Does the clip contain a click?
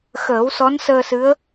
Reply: no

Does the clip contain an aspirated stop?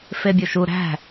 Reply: no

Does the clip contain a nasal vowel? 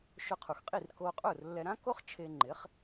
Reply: yes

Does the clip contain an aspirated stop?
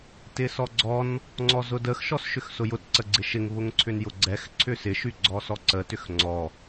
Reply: yes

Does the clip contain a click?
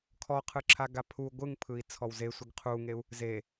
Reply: yes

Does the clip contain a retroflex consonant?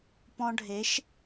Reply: yes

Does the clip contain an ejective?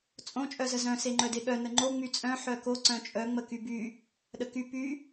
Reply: yes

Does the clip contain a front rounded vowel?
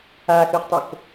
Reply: yes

